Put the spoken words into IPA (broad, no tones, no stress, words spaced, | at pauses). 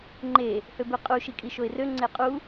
ŋ͡ǃe | høbeqʼu ʃikʼiʃoɪ̯rø ŋ͡ǀeqʼu